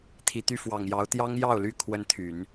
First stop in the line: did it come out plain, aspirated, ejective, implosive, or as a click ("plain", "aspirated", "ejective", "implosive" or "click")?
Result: aspirated